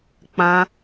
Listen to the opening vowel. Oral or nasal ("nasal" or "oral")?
nasal